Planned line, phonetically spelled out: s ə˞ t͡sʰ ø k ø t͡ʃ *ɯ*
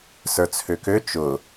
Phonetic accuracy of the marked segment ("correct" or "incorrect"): incorrect